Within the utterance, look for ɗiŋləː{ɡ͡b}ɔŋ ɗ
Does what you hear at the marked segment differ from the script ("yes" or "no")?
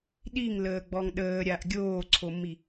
no